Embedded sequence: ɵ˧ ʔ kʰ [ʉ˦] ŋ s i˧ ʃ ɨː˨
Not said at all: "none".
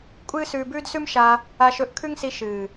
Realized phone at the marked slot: ʉ˦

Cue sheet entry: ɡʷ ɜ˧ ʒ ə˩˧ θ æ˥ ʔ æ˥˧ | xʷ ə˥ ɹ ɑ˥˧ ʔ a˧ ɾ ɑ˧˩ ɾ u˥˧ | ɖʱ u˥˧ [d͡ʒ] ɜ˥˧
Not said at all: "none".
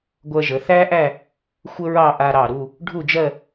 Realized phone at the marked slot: d͡ʒ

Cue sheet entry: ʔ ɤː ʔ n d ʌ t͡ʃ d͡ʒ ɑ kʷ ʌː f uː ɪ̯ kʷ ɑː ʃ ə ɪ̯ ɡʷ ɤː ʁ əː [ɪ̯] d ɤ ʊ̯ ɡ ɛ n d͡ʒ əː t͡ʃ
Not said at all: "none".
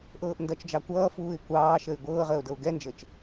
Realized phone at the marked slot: ʊ̯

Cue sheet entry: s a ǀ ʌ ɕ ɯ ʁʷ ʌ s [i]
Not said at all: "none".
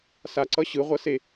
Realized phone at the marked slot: e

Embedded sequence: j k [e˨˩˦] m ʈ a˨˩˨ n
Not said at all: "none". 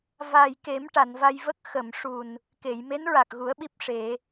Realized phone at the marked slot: e˨˩˦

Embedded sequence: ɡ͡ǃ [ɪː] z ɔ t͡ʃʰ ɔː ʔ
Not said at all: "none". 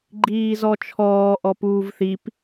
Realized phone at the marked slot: iː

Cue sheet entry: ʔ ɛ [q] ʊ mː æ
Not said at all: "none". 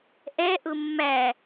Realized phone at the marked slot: ʔ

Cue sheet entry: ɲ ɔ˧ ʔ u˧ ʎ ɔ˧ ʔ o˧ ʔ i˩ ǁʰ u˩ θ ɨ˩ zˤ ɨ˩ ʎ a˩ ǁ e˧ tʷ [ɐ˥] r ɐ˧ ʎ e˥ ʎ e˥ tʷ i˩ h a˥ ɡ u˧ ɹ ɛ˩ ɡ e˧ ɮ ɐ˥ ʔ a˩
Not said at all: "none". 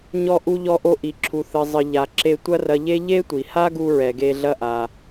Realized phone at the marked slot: ɐ˥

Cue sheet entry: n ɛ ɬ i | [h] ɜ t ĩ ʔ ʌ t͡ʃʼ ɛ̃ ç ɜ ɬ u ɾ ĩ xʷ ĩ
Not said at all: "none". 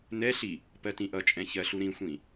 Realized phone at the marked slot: p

